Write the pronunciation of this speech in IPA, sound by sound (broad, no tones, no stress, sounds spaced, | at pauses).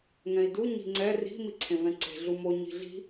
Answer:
ŋ ɛ̃ i̯ d u ɲ i̤ ŋ͡ǀ ɛ r i̤ m i ǀʰ ẽ v ɛ̃ ǀ e̤ ɮ u m o ɲ i̤ ɮ i̤